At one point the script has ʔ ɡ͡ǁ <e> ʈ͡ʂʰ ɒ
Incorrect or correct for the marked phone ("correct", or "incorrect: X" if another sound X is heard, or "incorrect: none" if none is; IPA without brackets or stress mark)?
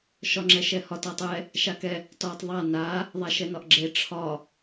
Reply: correct